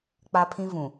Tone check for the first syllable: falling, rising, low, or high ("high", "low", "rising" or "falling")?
high